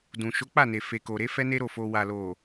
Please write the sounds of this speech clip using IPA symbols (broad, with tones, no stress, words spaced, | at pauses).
dũ˨ ʃo˨˦k͡pa˦˨ne˨ fe˨ ko˨ɾe˨˦ fɛ˦ne˦ ɾo˦˨fo˧ wa˨lo˨